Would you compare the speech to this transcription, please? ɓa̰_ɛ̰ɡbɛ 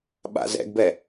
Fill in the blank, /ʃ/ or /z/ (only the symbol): z